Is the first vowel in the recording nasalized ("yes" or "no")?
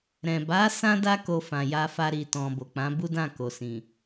yes